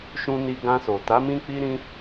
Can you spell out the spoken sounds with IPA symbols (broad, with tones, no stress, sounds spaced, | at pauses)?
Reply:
ʃ ũ˧ n i˧ ɡ ã˧ s o˨ t a˨˦ m ĩ˦ k͡p i˦ ɾ ĩ˦